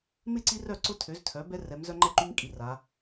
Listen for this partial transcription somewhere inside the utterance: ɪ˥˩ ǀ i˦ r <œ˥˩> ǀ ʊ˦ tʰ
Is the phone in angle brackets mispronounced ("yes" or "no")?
no